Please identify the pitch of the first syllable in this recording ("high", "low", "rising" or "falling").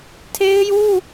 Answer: high